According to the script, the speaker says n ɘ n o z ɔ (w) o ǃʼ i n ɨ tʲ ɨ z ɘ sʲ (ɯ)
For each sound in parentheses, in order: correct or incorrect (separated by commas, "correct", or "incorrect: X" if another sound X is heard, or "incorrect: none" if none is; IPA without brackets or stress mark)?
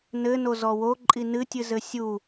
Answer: correct, incorrect: u